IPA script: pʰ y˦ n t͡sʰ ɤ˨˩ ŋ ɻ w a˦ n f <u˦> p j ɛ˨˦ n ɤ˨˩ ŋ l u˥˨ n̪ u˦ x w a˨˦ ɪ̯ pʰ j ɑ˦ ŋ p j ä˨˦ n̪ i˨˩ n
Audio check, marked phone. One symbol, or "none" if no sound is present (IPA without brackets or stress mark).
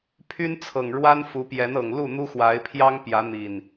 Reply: u˨˦